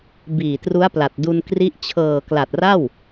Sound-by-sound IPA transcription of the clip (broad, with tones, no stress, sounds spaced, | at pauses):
b iː˨˩ t r u˦˥ a̯ p l a˨˩ t̚ d u˧ n k r i˦˥ ʔ t͡ɕʰ ɤː˨˩ k l a˨˩ t̚ r a˥˩ w